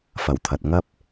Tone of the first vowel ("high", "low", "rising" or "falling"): low